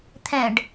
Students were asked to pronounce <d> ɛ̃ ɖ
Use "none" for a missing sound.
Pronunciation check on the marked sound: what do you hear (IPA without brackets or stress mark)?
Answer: t̪ʰ